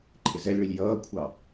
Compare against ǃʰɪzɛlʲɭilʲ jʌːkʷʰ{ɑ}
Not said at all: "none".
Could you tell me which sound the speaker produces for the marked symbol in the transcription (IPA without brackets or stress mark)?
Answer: ɑ